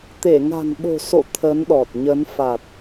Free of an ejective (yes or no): yes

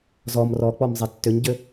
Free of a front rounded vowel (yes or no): no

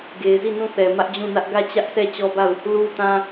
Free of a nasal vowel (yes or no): no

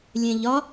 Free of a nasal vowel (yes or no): no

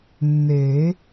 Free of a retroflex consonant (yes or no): yes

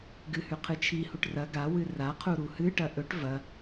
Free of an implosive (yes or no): yes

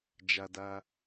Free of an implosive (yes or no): yes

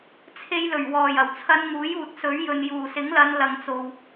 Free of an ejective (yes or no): yes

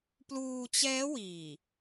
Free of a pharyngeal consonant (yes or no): yes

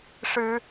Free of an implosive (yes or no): yes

